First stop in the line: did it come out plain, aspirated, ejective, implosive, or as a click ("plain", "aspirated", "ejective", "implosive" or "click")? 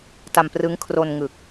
plain